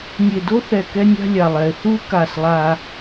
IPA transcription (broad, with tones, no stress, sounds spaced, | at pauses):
nʲ e˨ d o˦ θ ɛ˨ k ɛ˦ nʲ a̤˦ lʲ a˨ lˠ ɛ˨ e̯ θ u˦ k a˦˨ s lˠ a˦